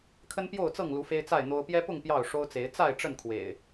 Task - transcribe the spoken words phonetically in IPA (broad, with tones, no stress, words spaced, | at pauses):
kʰə˦npjo˥˨ʊ̯t͡sɤ˥˨ŋlu˨˦ fe˦ɪ̯t͡sa˥˨ɪ̯n̪o˦ʊ̯ pjɛ˦pʊ˥˨ŋ pjɑ˥˨ʊ̯ʂo˦ʊ̯t͡se˨˦ɪ̯ t͡sa˥˨ɪ̯ ʈ͡ʂə˥˨nkʰwḛ˨˩ɪ̯